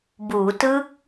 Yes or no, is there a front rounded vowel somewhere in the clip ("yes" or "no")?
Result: no